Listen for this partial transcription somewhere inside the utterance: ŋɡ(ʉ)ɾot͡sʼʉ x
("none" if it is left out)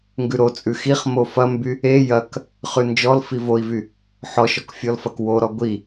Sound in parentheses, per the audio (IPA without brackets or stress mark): ʉ